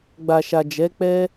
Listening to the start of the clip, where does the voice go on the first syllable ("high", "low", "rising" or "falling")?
low